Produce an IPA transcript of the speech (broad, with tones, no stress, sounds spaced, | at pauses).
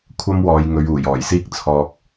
kʷʰ ɐ˥ m w ɔː˨˧ j ŋ ɵ˨˧ ɥ uː˨˩ j ɔː˨˩ j s iː˥ k̚ t͡sʰ ɔː˧ k̚